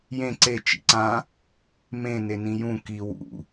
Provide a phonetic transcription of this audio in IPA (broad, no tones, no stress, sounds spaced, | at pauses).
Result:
j ẽ ǀ e t͡ʃ ḭ ǀ ã | m ẽ n e n ĩ j ũ k i w ṵ